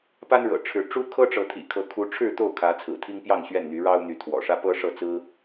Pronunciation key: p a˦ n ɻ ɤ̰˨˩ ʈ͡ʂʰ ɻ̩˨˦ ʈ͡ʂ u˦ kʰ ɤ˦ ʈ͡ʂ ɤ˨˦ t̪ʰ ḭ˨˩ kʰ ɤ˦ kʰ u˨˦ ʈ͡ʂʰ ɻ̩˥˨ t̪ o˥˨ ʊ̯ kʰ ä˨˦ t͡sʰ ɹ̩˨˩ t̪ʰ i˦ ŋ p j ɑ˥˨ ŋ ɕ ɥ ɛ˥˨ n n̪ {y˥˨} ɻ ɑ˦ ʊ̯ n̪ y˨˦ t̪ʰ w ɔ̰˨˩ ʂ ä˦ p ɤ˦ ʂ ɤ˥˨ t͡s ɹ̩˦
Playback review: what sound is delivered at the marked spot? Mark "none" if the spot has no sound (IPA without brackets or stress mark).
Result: y˨˦